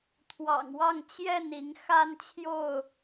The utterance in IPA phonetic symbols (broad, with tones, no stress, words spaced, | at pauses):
t̪ʰwɑ̰˨˩ŋwɑ˥˨ŋ t͡ɕjɛ˥˨ni˨˦ŋ xa˦nt͡ɕʰjo˥˨ʊ̯